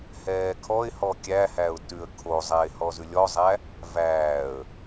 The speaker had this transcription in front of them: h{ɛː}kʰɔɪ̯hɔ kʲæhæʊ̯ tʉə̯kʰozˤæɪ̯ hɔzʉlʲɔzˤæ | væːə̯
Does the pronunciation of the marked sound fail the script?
no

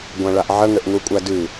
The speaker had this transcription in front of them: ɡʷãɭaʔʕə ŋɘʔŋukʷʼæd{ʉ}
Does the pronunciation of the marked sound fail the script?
no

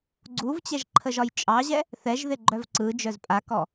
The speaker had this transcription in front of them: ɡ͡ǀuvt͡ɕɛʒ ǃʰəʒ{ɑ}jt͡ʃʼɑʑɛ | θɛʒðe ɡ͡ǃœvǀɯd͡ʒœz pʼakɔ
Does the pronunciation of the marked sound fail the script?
yes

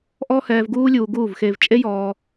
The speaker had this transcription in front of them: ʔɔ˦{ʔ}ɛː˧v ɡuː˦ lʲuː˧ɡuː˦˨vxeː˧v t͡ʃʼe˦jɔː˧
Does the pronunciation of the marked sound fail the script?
yes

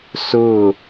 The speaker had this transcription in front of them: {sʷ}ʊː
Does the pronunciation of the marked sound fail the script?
yes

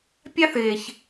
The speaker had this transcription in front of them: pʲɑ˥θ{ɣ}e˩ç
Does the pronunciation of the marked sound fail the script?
no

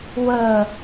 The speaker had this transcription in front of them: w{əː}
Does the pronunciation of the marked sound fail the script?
no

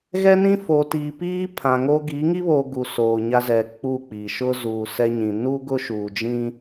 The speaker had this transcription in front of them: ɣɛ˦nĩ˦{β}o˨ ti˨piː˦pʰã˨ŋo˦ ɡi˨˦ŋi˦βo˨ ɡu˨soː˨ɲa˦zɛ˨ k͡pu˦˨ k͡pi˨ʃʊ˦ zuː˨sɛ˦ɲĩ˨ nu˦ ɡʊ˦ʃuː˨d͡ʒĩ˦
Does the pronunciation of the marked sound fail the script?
yes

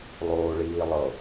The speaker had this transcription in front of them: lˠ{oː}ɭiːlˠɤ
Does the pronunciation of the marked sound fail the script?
no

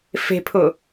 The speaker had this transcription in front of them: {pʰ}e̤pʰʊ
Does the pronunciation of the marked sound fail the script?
yes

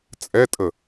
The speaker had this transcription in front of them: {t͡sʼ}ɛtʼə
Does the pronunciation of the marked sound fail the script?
no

